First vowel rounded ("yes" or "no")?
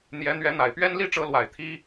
no